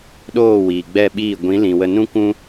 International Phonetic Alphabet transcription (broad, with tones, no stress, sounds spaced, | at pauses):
ɗ oː˦˨ w iː˨ ɡ͡b ɛ˦˨ ɓ iː˦˨ ɡʷ ĩ˨˦ l ĩ˨ w ə˧ n ũ˦ kʷ ũ˦